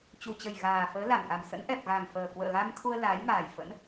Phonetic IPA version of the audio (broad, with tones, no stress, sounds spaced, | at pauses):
t͡ɕ u˨˩ t͡ɕ ə˨˩ j ɣ aː˨˩ f əː˨˦ l a˧˩ n ʔ a˨˩ m s ə̰˧˥ n ʔ ɛ˨˩ p̚ ɣ a˨˩ ŋ f əː˨˩ k w ə̰ː˧˨ ɣ a˧ m t̪ʰ u˧ ə̯ l aː˨˦ j m aː˨˩ j f ə̰˧˥ n